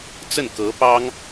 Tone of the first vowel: falling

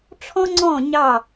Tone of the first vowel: high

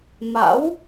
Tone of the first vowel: rising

